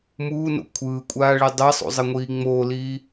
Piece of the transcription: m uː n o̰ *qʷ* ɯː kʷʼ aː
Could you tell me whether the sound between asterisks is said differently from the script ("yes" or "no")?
yes